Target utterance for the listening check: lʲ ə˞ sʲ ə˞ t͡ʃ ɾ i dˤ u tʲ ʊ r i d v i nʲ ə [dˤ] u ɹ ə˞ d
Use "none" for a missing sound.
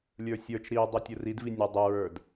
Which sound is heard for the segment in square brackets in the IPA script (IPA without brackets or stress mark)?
dˤ